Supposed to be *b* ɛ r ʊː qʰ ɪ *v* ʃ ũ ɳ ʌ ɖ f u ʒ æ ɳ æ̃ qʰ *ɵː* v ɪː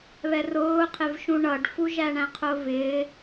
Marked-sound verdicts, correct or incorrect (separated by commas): incorrect, correct, incorrect